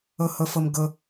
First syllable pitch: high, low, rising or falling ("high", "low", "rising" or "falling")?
low